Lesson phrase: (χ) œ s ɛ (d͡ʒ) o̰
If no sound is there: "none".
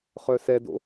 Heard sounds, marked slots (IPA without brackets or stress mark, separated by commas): χ, d